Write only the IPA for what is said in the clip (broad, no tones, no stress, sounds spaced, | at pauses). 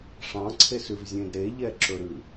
ʂ ɑ̃ ǀʰ e s ʉ v zʲ ẽ d ɾ e ʎ ɛ ǁ ɵ ɾ ʉ